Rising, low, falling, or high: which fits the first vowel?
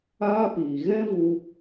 high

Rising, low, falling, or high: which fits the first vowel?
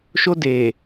high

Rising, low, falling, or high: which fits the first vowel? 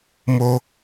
high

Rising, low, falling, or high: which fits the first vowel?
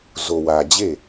low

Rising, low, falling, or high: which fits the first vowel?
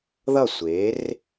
falling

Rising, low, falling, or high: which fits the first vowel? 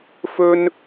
high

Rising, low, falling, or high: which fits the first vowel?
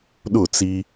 falling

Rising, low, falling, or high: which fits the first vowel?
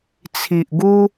low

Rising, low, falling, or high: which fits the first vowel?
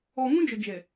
low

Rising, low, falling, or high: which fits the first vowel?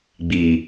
low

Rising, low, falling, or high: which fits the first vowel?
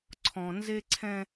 low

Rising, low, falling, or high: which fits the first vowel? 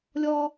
high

